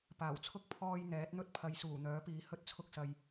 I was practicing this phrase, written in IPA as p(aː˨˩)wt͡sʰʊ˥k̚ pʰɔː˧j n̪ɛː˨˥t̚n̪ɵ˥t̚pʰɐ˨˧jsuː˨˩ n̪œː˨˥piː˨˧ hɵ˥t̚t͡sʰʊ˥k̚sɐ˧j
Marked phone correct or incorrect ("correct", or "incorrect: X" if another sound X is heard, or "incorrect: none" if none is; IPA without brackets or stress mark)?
correct